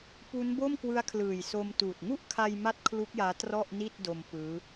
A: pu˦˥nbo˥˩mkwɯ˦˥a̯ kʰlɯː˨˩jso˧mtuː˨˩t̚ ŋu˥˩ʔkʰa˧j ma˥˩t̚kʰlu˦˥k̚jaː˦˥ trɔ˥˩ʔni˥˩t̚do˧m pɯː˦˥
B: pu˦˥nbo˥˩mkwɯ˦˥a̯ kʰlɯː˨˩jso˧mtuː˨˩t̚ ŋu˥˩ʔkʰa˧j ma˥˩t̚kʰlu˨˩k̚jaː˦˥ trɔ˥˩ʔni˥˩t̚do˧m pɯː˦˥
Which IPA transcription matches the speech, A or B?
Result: A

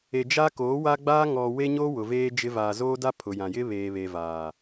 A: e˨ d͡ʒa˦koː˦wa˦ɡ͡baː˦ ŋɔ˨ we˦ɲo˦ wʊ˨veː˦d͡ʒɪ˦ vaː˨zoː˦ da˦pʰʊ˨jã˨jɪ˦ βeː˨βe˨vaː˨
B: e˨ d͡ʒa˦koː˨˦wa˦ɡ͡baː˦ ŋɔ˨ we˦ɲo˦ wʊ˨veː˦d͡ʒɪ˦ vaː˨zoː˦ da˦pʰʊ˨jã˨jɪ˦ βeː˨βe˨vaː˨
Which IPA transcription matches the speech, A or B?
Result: B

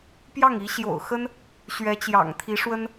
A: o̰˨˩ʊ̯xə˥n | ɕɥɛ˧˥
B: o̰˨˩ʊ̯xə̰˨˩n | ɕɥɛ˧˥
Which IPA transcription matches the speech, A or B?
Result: A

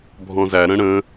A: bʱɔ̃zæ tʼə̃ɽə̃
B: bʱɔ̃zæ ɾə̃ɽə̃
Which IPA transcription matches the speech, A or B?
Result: B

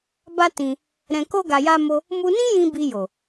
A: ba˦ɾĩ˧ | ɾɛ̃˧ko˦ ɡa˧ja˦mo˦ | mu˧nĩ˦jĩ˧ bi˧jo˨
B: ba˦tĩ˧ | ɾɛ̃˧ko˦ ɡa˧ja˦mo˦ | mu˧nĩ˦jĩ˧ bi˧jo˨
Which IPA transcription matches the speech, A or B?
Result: B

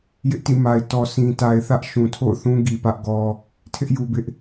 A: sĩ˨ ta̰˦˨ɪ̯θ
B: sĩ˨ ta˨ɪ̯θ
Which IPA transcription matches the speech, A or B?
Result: B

